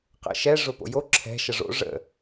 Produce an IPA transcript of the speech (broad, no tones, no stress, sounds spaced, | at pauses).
q ə̰ ʃ ɛ ʐ ʊ p o̰ j o ǁʰ ɛ̤ ʃ ə ʐ o̰ ʐ ə̰